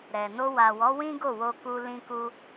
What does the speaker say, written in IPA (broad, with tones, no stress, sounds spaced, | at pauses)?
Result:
ɾ ɛ˨ n o˧ w a˨ w ɔ˨˦ w ĩ˦ ɡ o˦˨ w o˧ k u˧ l ĩ˧ k u˧